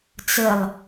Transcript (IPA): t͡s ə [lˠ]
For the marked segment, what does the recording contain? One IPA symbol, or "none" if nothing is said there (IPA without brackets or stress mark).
lˠ